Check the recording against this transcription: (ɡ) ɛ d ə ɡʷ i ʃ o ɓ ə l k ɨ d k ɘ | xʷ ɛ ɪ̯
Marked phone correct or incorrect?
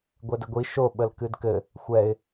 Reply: incorrect